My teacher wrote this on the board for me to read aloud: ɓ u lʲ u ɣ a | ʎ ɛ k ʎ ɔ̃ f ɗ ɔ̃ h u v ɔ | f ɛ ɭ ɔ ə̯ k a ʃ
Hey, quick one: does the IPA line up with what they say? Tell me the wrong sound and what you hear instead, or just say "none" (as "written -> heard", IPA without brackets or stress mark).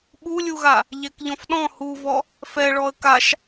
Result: none